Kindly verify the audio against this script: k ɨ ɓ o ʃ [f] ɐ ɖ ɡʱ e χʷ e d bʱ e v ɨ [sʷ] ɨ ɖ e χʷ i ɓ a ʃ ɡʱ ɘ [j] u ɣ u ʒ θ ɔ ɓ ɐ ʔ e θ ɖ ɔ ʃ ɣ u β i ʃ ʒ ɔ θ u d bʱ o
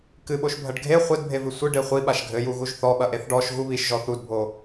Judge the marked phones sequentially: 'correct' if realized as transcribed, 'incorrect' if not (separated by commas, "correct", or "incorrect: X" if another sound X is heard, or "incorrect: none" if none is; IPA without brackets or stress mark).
incorrect: bʱ, correct, correct